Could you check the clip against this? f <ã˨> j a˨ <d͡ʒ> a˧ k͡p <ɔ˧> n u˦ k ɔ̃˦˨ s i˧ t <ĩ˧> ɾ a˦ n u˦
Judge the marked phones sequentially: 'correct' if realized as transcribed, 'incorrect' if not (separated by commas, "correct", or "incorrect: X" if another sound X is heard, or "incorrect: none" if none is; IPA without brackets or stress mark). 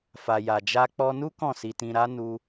incorrect: a˨, correct, correct, correct